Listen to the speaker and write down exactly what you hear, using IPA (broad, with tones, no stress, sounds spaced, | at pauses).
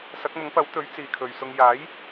s ɐ˨˥ k̚ m ʊ˨˥ ŋ p ɐ˨˥ w t̪ ɵ˨˥ ɥ t͡s iː˨ kʰ ɵ˨ ɥ s ʊ˧ ŋ j aː˨˥ j